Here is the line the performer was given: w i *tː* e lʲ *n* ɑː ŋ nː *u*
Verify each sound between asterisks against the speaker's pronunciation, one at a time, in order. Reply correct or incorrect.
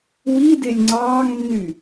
incorrect, incorrect, incorrect

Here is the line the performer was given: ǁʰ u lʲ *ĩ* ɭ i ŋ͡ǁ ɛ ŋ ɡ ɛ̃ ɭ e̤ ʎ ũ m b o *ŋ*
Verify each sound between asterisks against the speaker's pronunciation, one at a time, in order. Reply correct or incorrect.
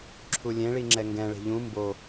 incorrect, incorrect

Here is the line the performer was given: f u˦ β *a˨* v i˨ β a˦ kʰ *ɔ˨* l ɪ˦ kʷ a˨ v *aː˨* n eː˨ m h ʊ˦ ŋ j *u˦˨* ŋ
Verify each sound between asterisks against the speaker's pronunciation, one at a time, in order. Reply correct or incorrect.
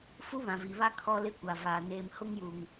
incorrect, incorrect, correct, incorrect

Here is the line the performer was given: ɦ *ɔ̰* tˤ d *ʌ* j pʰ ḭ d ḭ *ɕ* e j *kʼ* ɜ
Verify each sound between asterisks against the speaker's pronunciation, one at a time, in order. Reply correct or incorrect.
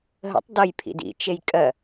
incorrect, correct, incorrect, correct

